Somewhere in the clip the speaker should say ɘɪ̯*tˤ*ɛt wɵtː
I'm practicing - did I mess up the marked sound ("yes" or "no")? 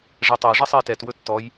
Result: yes